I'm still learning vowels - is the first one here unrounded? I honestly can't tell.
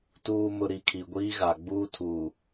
no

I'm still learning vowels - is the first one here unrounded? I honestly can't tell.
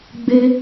yes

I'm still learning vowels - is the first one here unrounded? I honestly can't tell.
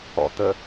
no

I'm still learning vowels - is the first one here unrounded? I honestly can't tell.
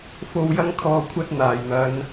no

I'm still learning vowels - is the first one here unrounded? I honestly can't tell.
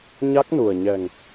yes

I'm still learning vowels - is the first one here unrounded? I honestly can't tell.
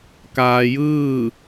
yes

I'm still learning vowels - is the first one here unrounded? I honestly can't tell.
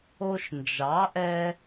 no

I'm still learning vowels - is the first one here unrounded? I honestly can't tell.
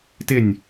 yes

